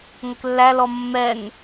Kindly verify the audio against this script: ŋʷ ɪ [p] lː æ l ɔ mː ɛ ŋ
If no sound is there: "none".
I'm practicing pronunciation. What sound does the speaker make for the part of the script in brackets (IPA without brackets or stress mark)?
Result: k